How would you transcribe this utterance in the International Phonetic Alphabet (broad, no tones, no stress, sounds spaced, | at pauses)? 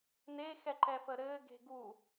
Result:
n e x ɛ ǃ ɛ f ə ɾ ɘː ɡ e̤ ɡ u